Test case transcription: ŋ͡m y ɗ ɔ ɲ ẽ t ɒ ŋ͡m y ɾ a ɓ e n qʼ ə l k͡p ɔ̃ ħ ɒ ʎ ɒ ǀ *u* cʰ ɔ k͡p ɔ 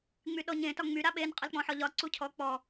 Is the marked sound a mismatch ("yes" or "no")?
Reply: no